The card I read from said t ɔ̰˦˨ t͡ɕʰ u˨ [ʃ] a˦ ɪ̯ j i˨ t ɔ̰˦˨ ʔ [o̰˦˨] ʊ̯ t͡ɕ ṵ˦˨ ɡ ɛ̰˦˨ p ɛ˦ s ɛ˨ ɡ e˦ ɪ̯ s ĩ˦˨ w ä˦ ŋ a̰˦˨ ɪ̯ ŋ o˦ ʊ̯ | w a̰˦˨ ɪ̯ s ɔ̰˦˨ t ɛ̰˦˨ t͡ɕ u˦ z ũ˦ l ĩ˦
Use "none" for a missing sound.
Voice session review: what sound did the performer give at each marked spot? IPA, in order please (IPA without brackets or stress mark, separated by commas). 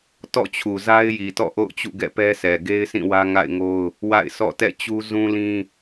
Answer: z, o̰˦˨